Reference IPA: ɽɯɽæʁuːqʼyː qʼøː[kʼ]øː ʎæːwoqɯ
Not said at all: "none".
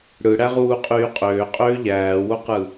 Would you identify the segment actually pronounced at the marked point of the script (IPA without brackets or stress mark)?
qʼ